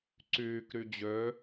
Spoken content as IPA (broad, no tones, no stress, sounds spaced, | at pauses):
ǀ yː k ɾ y d͡ʑ ø